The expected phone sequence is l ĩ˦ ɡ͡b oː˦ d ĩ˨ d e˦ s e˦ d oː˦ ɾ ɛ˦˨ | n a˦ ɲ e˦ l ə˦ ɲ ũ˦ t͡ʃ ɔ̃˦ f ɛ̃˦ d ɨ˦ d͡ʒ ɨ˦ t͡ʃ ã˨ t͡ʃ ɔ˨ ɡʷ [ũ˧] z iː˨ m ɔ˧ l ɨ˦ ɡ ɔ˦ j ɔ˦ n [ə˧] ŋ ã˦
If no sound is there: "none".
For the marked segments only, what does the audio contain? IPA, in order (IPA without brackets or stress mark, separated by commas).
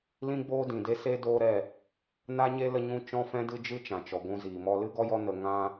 ũ˧, ə˧